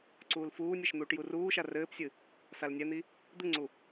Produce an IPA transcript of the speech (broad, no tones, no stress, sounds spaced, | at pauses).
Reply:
ǀ uː l f uː nʲ e ʃ n̪ uː ʈ j u r uː ʃ a r ɘː p sʲ ɨ | s a l nʲ ɛ n̪ i | d̪ ɨ ŋ͡ǀ u